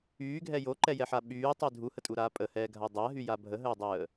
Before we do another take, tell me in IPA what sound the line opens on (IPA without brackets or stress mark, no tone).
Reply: yː